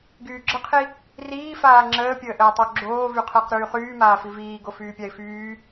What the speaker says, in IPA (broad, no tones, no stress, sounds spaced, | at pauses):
ɡ yː ɡ͡ǁ ə qʰ i | r iː f aː ŋ͡ǁ əː pʲ əː ʔ əː tˤ o ɡ͡ǁ oː v y qʰ əː q ɾ yː χ yː m aː f i v iː ɡ o f yː pʲ a ɪ̯ f yː